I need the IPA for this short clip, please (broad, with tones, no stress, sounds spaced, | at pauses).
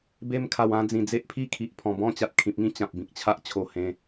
b e˧ m kʰ a˨˩ w ã˧ d͡z ĩ˨˩ d͡z e˦ ʔ pʰ i˥˧ kʰ i˨ ʔ pʰ ɔ̃˨˩ b ɔ̃˥˧ t͡ɕ a˨ t̚ kʰ ĩ˨ p̚ ŋ ĩ˥˧ t͡ɕ ã˨ p̚ b ĩ˨ k̚ t͡ɕʰ a˦ ʔ t͡ɕʰ o˧ h ẽ˧